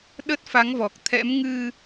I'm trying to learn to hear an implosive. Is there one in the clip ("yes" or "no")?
yes